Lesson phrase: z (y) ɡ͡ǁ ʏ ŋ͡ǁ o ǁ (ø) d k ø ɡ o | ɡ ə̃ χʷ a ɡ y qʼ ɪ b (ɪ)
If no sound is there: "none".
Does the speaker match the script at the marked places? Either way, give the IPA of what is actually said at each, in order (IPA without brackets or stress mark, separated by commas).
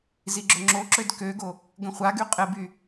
i, ø, y